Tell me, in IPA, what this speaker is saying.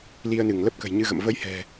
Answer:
li˧ə̯nɨ˧˩ŋ lə˦˥p̚kə̤˨˩jɲɨ˧ɣə̰˧˨m və˧jhɛ̤˨˩

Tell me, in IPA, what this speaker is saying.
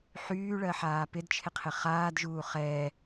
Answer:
ħyːɭɜ ħaːpɪdt͡ʃʰɪ qʰɪχaːdʒuː χɛː

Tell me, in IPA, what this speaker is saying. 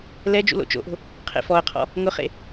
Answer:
lɛ d͡ʒṵlo̰t͡ʃo̰ʔo̤ | qʰḛfɔə̯qʰɔ̰ | ŋʊχḛ

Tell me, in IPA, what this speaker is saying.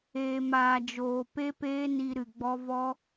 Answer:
eː˨maː˨ d͡ʒoː˨pe˦peː˦ ni˧ɾɨ˨ɡ͡bɔ˦ vɔ˦

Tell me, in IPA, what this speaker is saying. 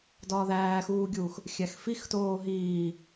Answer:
dɒːðæːxuːɡʲuːx | xʲæxfixtoː ɦiː

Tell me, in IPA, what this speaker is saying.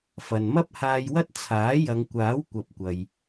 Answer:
fɐ˨nmɐ˥p̚haː˧jwɐ˥t̚ t͡sʰaː˨˥jɐ˨˧ŋkʷaː˨˥w kʷɐ˨p̚kʷɐ˨j

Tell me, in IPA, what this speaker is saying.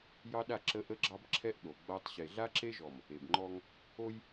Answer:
jɑ˦ɗa˦˨ ǁə˦ʔə˦ɡ͡ǁɑ˦bǁʰɛ˦ʔ ɗo˨ɡ͡ba˦tˤ ɕe˨ɮa˦ǁe˦ʒɔ˨m | e˨bŋ͡ǃɔ˦ŋ | o˦j

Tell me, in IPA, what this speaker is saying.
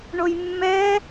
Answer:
ɳojmːɛ

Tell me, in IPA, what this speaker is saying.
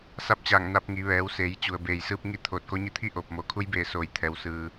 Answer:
sa˧˥p̚t͡ɕaː˧˩ŋna˧p̚ ŋi˩˧ʋɛː˩˧wseː˩˧jt͡ɕu˩ə̯ beː˩jsɯː˧p̚ ŋi˥˨t̪ʰoː˧˩t̚ko˧˥ɲi˥˨ t̪ʰi˥˨ʔoː˧˩p̚mo˩˧ kʰu˧˥jbeː˧˩soː˧˩j t̪ʰɛː˧wsɯː˧

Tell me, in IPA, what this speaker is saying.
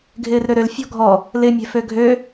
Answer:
ɡʱɪːrɾøɾøl fʲɔ̤ɡʱɔ | lɪ mʲɛ̤føɡʱø

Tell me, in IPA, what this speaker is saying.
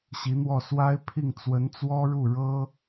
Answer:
ɕi˧˥n̪wɔ˥˩ swa˥ɪ̯pʰi˥˩ŋ t͡swə˧˥nt͡swɔ˥ɻu˥˩ ɻɤ˥

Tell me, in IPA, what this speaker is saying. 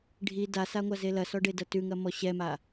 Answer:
ɖʱi dasaŋʷa zelɐsɔɖe dɐtʉŋɐmɔ ɕɛma

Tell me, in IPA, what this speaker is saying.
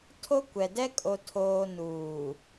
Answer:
tʰo˦kʷɛ˨ dɛ˦kʼo˨tʰoː˨ nuː˨

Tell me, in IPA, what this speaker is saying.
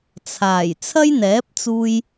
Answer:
t͡sʰaː˨˩j t͡sʰɐ˥jn̪ɛː˨˥p̚t͡suː˧j

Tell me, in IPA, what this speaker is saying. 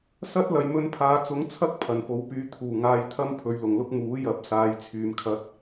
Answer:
sɐ˥t̚ lɐ˨jmɵ˧npʰaː˨˧t͡sʊ˨˥ŋ t͡sʰɐ˥k̚ pʰɐ˨˩npo˨˧wpyː˧ t̪ʰuː˨˩ŋaː˧jt̪ʰɐ˥m pʰɵ˨˧ɥlʊ˨˩ŋlʊ˥k̚ muː˨˥jɐ˨˥p̚ saː˨˧jt͡sʰyː˨mkʰɐ˧t̚

